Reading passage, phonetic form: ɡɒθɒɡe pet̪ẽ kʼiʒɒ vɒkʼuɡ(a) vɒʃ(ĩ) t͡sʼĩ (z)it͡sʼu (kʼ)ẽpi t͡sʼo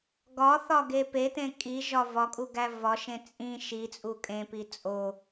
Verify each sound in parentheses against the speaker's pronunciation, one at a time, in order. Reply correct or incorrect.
incorrect, incorrect, incorrect, correct

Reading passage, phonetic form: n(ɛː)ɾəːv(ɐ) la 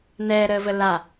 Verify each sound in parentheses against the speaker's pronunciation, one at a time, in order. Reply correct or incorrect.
correct, incorrect

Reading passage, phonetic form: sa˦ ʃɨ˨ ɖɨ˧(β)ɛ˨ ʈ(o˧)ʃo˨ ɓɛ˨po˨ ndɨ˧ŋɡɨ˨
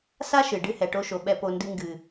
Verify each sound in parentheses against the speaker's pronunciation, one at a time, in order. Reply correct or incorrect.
incorrect, correct

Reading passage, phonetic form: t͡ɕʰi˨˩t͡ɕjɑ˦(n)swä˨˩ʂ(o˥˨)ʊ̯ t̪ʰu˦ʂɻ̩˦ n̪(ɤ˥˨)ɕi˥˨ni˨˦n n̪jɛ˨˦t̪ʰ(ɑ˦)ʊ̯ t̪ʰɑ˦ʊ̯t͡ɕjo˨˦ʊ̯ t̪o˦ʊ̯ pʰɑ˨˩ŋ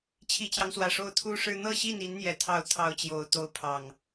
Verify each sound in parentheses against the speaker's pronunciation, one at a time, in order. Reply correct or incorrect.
incorrect, correct, correct, correct

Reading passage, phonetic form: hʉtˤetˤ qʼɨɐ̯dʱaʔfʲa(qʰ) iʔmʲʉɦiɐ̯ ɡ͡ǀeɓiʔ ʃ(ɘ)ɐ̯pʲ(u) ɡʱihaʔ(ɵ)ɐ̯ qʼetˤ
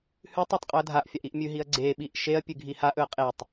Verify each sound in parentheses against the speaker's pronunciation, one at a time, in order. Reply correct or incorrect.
incorrect, incorrect, incorrect, correct

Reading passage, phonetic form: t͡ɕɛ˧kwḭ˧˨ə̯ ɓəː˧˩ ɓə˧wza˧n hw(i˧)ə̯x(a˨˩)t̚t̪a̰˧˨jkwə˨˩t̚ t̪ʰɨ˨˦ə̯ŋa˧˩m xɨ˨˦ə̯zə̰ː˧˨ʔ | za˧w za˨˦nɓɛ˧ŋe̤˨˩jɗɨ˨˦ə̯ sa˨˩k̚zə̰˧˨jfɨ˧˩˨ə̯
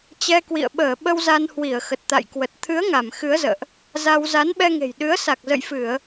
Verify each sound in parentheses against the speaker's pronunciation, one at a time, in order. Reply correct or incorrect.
incorrect, incorrect

